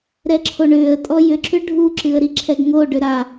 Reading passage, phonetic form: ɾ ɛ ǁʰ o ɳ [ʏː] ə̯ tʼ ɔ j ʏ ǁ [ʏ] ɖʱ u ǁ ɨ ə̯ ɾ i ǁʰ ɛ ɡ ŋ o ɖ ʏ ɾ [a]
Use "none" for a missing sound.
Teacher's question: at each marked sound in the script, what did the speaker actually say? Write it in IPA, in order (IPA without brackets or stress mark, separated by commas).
ʏː, ʏ, a